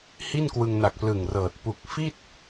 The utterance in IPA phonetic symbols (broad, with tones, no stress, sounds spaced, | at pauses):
h i˥˩ n k w ɯ˧ ŋ n a˨˩ k̚ p l ɯ˨˩ ŋ r ɤː˨˩ t̚ p u˨˩ k̚ f i˥˩ t̚